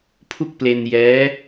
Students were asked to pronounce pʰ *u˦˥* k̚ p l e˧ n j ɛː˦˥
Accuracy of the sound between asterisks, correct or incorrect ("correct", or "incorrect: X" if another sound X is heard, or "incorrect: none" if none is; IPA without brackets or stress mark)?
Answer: incorrect: u˥˩